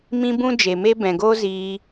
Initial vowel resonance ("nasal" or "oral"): nasal